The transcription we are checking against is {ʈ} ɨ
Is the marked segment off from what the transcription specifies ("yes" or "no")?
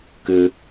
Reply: yes